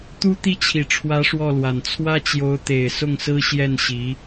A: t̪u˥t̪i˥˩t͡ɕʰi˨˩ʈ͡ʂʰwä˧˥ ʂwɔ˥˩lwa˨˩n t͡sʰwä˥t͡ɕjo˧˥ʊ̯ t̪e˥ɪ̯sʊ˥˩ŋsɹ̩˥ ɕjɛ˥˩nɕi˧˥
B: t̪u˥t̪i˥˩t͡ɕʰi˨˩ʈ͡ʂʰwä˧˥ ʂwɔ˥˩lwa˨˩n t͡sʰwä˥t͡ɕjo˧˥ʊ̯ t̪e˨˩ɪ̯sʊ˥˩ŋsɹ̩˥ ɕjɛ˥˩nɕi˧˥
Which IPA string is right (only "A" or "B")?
B